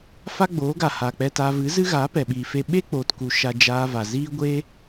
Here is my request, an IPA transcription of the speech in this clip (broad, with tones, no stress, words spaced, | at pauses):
fa˦ɡ͡boː˨˦ɡa˨ haː˨k͡pɛ˧taː˧ vɨ˨˦zɨ˦ɣaː˨˦ pɛ˨ɓiː˨fe˧ ɓe˦k͡poː˨tku˨ ʃa˧d͡ʒaː˧va˨ ziː˦ɡʷe˦